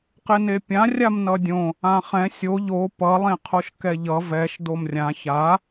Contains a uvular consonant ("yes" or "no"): yes